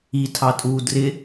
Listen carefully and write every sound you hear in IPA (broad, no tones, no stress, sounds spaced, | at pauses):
i tʰ ɑ tʼ uː d r ɪ